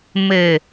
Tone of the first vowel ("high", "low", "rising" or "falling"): low